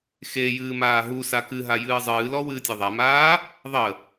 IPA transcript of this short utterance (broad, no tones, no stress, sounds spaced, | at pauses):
x e j ɨː m aː ɦ u s a k ɨ ɦ a j ɨː zˤ ɨː l ɔ w ɨː tʲ e ðˤ a m aː | ðˤ ə